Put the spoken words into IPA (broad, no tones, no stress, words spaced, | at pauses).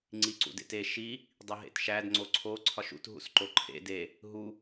ŋ͡ǀiǀṵdḛte ʃi | dˤiɦḛtʃæd ŋ͡ǀoǀʰo ǀʰɒʃṵt ɦṵsǃoǃʰḛ de | ɦu